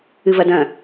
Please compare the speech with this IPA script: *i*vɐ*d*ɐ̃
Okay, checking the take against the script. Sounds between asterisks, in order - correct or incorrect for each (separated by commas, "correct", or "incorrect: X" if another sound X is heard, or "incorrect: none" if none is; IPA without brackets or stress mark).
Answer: incorrect: ɨ, correct